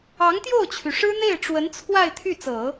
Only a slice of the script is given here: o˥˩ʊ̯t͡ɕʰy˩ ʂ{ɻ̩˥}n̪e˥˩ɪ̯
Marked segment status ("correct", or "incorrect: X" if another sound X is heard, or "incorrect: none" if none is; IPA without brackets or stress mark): correct